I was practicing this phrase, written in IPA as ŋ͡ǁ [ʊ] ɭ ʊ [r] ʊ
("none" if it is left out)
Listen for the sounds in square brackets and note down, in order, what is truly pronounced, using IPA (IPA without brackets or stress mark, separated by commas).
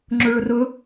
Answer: ʊ, r